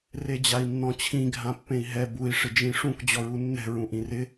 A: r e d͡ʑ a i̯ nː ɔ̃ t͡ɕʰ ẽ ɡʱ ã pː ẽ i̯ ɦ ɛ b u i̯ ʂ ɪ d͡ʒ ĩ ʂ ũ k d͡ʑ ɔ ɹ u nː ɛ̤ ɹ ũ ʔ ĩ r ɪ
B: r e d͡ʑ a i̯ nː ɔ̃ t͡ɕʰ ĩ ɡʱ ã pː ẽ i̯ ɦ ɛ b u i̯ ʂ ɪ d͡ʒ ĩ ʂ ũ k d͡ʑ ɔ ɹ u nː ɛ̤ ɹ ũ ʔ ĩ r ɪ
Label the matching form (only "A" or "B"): B